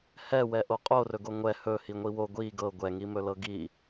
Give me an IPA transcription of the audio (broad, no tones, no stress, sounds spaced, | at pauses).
h ɛ w ɛ ʔ o qʼ o r ɵ ɡ o ŋʷ ɛ h ɵ h i ŋʷ i w o ɡʷ i ɡ ɤ ɡʷ ɛ ŋ i m ɵ l ɤ ɡ i